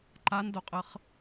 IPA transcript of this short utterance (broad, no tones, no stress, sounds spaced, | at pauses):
ǃ a n d o qʼ ə χ